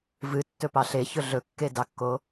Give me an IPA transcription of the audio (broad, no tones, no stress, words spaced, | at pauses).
vɨtːɵ pɑɬeçɵ ɮɵkːedɑkːo